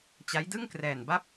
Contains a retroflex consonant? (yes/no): no